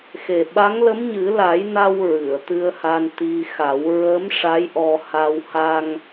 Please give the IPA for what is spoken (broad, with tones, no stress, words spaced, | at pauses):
xe˨˩ɓa˧˥ŋ lə˧˥mɲɨ˨˩˦la˨˩˦jna˧w ɹɨ˨˩˨ə̯t̪ɨ˧ə̯ha˧n t̪i˧xa˨˩˦w ɹə˧˥m ʂa˧˥jʔɔ˧ ha˧w ha˧ŋ